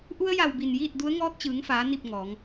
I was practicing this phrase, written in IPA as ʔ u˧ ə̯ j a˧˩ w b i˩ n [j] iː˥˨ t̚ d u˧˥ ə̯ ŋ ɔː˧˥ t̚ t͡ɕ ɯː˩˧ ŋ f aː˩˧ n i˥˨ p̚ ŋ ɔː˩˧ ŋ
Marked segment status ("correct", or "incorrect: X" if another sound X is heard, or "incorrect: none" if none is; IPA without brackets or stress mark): correct